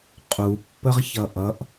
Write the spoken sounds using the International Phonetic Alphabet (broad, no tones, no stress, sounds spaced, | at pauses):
qʼ u pː ə ʁ ç ʌ ʔ ʌ ʔ